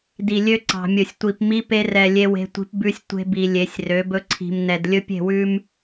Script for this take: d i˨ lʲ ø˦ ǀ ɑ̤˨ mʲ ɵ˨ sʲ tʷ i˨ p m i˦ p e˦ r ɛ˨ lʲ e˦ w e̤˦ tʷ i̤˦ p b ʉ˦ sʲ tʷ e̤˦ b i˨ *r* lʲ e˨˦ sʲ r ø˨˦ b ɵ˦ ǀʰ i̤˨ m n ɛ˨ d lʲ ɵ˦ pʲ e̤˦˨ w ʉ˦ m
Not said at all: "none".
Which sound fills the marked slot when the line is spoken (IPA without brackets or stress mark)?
none